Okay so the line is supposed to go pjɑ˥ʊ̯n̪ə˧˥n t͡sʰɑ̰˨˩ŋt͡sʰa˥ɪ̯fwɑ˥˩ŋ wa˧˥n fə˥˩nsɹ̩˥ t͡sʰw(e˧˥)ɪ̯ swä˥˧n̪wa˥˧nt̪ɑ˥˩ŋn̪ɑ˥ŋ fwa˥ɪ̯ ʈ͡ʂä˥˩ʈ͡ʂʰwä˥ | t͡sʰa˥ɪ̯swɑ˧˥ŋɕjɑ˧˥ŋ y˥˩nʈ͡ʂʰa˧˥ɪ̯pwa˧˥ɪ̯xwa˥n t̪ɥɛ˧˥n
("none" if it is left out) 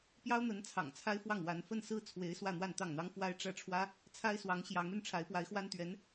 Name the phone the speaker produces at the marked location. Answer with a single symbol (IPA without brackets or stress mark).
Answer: e˧˥